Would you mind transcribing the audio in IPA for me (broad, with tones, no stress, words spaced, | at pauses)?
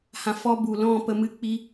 hã˨fɔ˧ bu˨lɔ̃˦˨pə˧ mɨ˧ k͡pi˧